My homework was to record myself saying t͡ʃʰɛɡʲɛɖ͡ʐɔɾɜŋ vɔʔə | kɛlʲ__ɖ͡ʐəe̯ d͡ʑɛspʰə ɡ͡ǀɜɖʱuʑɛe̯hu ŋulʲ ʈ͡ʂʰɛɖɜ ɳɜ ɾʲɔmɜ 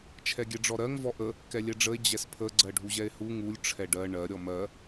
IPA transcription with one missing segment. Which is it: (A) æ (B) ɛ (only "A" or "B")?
B